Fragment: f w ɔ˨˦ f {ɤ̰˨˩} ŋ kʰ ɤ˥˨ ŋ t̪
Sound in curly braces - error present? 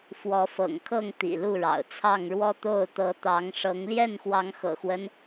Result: no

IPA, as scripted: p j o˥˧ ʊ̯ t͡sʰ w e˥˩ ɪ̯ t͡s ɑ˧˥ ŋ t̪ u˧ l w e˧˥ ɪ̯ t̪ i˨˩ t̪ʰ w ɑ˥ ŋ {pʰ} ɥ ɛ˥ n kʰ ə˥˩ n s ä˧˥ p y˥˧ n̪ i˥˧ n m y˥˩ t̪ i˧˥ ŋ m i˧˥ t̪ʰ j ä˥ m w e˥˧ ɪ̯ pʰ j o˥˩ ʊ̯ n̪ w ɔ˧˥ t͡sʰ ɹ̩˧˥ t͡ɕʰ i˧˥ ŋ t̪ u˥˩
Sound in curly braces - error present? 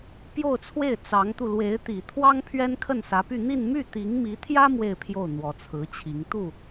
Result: no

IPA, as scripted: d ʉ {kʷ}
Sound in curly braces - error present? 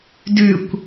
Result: no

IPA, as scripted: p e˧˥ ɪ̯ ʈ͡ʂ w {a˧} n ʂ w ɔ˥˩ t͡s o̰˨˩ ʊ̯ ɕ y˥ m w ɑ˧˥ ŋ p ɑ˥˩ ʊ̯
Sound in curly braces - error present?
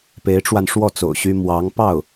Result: no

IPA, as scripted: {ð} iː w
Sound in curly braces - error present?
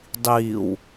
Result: yes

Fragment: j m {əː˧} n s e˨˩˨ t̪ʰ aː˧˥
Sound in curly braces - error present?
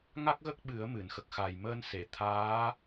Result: no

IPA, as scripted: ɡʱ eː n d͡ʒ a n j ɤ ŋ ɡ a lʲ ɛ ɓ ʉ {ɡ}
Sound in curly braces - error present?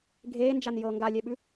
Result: yes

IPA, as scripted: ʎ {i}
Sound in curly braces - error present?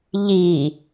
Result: no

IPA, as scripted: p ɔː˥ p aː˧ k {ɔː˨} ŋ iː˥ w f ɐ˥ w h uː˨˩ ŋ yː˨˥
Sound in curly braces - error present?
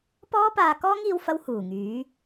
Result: yes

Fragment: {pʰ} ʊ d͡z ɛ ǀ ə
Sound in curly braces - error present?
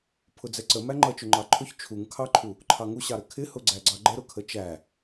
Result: no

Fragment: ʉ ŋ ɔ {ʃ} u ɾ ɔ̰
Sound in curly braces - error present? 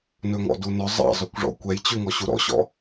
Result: yes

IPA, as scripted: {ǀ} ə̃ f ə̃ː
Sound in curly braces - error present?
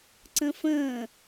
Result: no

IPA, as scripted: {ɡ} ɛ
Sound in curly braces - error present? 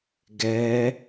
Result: no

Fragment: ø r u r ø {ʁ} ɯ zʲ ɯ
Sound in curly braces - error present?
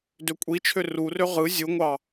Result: no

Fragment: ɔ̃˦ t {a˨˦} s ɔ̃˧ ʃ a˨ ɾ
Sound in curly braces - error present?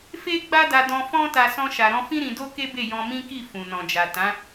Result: yes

